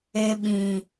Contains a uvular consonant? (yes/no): no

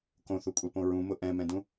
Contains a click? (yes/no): no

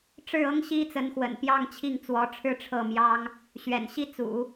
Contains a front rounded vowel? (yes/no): no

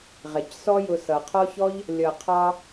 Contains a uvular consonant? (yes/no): yes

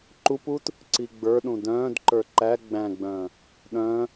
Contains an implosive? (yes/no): yes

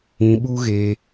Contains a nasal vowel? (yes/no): yes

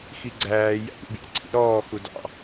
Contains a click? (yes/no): yes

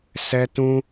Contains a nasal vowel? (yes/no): yes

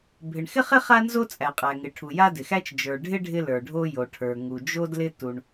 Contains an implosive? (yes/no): no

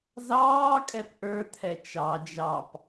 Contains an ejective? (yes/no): yes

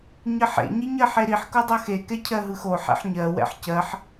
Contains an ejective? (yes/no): no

